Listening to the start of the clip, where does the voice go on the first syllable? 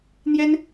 high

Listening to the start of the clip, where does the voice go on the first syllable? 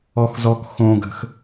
low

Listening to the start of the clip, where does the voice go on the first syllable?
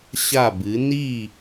falling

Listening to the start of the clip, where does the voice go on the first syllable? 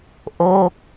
falling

